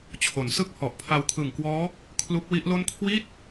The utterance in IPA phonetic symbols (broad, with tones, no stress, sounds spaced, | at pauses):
t͡ɕʰ o˩˦ n s ɯ˥˩ k̚ h ɔ˨˩ ʔ pʰ a˧ w kʰ ɯ˨˩ ŋ k w ɔː˦˥ | kʰ l u˦˥ k̚ w i˦˥ ʔ l o˥˩ n kʰ w i˥˩ t̚